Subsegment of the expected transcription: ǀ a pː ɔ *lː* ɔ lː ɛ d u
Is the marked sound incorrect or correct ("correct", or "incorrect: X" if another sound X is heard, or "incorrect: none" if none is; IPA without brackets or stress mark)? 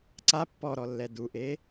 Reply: incorrect: ɾ